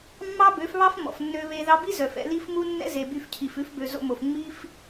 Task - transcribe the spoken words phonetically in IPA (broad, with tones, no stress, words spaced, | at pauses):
mːɑ˦bø˨˦fβɑ˦f mɔ̰˨fnːø˧βe˧ ðɑ˧bi˦ zœ˨fɛ̰˧li˦fmu˦ nːɛ̰˦ze˨by˧fcʰi˨f ʉ˨˦fbø˨zo̰˧mo˨f ŋ͡mi˦f